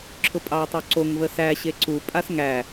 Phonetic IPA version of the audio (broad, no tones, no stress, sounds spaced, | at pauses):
ǁʰ ʊ pʼ ɑ j tˤ o ǀ o ŋ v ə s æ ɕ e ǀ u pʼ a s ŋ æ